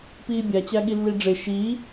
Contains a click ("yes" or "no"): no